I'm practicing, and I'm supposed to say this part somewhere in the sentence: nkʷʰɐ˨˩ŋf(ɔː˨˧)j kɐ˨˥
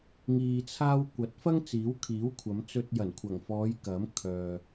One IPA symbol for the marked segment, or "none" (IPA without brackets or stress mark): ɔː˨˧